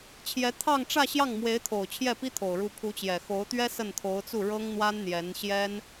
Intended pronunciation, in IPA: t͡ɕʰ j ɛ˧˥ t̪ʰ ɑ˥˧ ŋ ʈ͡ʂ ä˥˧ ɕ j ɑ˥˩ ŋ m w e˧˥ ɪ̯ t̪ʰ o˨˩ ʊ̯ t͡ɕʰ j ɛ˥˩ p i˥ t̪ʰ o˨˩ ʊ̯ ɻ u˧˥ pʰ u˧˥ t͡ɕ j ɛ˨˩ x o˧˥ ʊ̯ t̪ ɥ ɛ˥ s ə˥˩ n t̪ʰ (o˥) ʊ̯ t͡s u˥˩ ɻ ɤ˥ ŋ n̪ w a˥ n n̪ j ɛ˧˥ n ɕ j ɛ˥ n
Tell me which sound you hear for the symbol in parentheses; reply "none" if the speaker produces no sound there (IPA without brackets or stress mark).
o˧˥